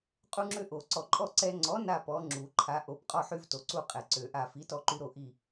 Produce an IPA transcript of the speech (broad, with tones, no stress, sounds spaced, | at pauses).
qʼ u˦ ŋ͡ǁ ø˦ ʔ o˨˩˦ ǀ ɔ˨ ǃʼ ɔ˦˨ ǀ ɛ˦ ŋ͡ǀ ɔ˨˥ n a˦˨ p ɔ˨˥ ŋ͡ǁ u˨˩˦ ǃʰ a˨˥ ʔ o˨˥ p qʼ ɔ˦ ħ y˦ v t o˨ ǀ u˦˨ qʼ ɛ˨ ǀ ø˨˩˦ ʔ a˦˨ f i˨˥ t ɔ˦ ǃ y˦ ɾ o˦˨ ʔ i˦˨